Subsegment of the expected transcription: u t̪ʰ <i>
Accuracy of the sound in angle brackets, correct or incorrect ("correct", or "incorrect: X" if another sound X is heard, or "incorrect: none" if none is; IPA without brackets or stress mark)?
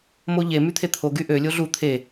incorrect: e